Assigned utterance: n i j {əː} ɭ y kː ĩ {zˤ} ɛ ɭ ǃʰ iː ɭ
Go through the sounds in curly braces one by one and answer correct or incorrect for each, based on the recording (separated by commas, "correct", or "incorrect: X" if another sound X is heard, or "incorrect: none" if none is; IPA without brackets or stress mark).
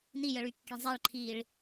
incorrect: ə, correct